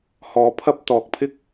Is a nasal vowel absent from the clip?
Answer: yes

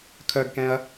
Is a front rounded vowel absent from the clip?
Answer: no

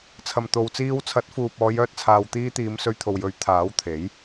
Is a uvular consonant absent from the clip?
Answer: yes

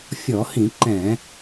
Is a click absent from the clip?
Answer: no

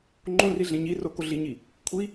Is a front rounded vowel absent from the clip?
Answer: yes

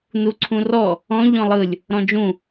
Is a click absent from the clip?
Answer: no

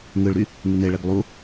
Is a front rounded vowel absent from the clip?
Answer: no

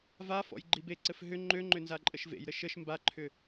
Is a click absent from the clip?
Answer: no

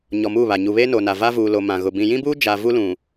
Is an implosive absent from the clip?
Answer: yes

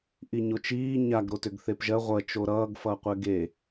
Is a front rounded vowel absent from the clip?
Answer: no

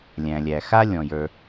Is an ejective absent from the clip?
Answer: yes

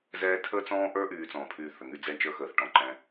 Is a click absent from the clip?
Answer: no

